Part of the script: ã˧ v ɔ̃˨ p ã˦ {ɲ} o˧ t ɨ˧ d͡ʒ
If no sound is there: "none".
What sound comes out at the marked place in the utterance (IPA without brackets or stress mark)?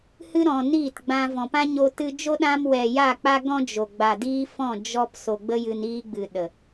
ɲ